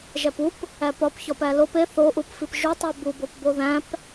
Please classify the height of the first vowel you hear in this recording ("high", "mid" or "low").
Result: low